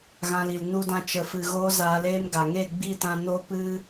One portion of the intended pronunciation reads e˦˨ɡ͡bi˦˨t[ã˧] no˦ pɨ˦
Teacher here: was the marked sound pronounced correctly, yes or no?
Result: yes